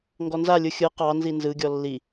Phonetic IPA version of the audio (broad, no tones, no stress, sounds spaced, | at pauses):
ŋ ɡ ɔ n z a lʲ ɯ xʲ ɯ q ɑ n z i n z ɯ ɡʲ ɔ lː i